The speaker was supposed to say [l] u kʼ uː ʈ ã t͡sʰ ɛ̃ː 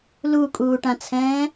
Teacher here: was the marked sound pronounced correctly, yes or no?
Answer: yes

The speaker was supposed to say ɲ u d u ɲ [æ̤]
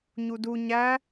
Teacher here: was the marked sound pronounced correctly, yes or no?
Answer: no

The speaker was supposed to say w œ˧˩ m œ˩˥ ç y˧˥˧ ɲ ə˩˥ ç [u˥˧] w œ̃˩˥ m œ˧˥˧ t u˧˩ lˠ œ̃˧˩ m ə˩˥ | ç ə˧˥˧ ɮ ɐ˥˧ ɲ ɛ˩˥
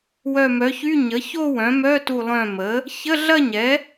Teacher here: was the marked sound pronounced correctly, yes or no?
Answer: no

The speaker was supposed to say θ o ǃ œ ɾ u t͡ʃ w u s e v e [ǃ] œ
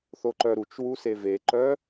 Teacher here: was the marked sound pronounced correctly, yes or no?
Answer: yes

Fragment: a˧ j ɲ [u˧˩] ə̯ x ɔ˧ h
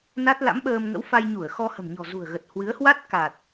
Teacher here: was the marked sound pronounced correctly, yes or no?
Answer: yes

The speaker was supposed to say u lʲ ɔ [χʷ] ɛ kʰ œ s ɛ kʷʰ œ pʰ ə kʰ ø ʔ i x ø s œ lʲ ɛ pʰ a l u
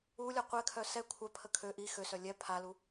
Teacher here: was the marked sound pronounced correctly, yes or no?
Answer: no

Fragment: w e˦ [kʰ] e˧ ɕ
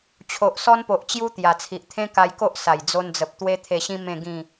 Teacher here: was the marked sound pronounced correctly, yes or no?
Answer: no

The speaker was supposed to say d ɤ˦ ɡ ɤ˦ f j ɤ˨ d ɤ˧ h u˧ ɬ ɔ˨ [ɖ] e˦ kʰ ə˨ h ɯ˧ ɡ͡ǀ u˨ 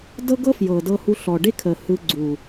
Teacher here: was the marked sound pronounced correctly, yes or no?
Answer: yes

